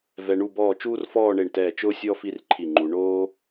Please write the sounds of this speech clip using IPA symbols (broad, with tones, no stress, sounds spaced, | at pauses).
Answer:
v ɛ˧ ɳ u˥˧ b ɔː˥˧ t͡ʃ uː˥ r f ɔː˥˧ ɳ e˧˩ ɳ t ɛː˧˩ t͡ʃ ʊː˥ sʲ ɔ˥ f i˥ r ǃʰ i˧˩ ŋ͡ǃ u˩˧ ɳ oː˥